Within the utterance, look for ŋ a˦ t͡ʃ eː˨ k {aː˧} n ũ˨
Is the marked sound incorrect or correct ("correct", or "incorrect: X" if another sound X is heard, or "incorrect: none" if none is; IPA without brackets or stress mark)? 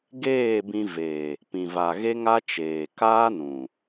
incorrect: aː˦